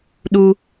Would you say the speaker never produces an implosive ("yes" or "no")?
no